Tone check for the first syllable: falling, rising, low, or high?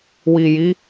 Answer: low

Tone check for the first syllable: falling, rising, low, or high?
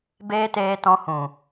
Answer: high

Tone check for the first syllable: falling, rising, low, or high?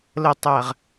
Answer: low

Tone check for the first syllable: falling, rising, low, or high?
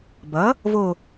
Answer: rising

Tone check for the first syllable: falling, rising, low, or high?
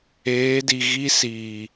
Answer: rising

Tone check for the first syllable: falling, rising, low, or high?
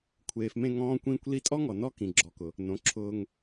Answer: low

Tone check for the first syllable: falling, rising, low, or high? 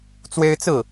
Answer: high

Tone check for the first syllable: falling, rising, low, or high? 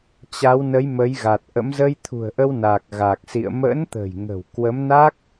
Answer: rising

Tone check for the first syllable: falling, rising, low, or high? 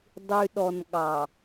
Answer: low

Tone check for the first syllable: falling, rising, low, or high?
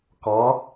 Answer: rising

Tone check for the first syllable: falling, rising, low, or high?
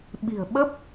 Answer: low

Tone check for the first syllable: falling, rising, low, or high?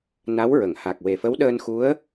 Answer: rising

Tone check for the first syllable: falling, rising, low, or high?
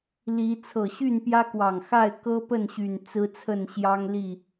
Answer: rising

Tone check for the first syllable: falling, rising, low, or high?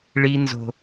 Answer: high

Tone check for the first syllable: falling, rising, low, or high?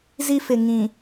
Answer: high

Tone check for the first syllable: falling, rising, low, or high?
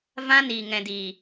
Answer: high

